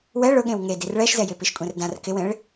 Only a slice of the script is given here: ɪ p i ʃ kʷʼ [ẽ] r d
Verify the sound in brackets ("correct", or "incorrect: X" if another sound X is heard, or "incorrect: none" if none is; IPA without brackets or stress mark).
correct